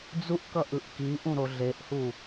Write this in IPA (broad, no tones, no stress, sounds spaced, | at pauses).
d͡z u ʔ k ʌ ʔ ɯ ʔ k i ʔ ũ ɾ o ɮ e ʔ h u